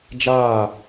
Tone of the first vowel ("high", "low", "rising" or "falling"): falling